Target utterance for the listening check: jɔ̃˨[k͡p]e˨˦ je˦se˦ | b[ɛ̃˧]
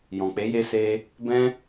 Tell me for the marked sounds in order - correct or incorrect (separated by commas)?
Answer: correct, incorrect